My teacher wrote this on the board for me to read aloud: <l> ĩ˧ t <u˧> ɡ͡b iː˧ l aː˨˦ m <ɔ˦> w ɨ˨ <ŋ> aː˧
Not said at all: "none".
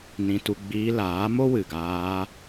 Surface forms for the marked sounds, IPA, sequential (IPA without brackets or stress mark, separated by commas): n, u˧, o˦, ɡ